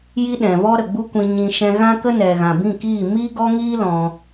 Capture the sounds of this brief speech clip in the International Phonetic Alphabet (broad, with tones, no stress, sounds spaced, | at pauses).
j i˦ ɗ ɛ̃˨ v ɔ˦ ɾ ə˨ ɡ͡b u˦ kʷ ĩ˧ ɲ ĩ˧ ʃ ɛ̃˧ ɣ ã˦ k ə˦ n ɛ˨ ɣ ã˨ b ĩ˦˨ k iː˦˨ m i˦ ɡ ɔ˦ ŋ iː˦ l ɔ̃˦